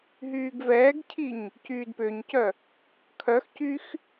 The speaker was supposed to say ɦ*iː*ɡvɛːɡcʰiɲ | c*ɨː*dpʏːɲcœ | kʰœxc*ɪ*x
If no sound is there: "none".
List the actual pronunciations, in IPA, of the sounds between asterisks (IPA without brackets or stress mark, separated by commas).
yː, yː, y